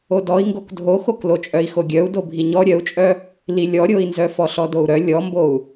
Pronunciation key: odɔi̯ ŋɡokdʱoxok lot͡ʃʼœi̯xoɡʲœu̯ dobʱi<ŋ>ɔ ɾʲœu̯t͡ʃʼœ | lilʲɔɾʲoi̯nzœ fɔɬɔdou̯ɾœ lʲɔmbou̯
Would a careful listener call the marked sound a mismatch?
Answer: yes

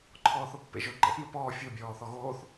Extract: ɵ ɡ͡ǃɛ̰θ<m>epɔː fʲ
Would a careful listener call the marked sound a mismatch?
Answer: no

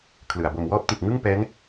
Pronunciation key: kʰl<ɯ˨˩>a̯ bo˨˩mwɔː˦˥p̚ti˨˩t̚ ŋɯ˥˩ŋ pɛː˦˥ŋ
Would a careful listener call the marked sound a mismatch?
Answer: no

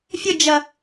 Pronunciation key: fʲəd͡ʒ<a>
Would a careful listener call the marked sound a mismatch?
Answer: yes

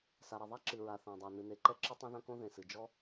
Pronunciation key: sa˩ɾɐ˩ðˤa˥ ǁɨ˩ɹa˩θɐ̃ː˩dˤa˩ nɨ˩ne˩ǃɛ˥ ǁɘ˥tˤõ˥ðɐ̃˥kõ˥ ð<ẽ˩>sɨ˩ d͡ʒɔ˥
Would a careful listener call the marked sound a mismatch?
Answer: no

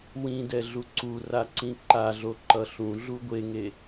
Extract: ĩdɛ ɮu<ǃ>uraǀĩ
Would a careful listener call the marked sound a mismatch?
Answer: yes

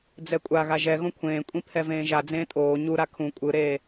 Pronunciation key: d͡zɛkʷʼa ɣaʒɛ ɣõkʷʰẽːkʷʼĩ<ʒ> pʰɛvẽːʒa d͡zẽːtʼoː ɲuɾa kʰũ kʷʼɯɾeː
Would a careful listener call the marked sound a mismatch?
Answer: yes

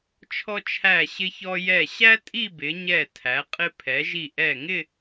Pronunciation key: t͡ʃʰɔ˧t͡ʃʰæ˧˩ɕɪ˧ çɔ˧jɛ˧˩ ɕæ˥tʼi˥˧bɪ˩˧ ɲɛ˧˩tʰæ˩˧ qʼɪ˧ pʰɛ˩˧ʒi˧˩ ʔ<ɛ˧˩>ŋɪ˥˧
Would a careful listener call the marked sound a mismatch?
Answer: no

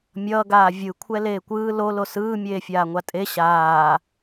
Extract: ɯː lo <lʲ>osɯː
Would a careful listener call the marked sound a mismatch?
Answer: yes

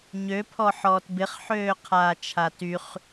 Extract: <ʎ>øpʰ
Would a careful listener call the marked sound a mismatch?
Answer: yes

